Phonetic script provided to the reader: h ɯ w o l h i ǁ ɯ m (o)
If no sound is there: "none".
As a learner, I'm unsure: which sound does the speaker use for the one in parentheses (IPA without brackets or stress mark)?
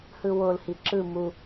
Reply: u